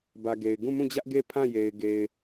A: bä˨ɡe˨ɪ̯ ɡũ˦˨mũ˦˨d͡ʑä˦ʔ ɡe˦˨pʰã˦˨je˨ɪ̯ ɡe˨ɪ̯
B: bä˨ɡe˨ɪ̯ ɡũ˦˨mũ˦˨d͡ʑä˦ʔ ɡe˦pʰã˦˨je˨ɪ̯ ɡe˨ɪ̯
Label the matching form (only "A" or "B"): A